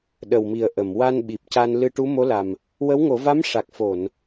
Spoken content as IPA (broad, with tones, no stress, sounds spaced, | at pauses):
ɗ ə˨˩ w m i˨˩ ə̯ ʔ ə˨˩˨ m w a˧ n ɓ i˨˩ p̚ c a˧ n l ɨ˧ ʈ u˧˥ m o˧˥ l a˨˩ m | w ə˧˥ w ŋ o˨˩˦ v a˧˥ m ʂ a˨˩ k̚ f o˨˩˨ n